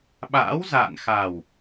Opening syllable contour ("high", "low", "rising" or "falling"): rising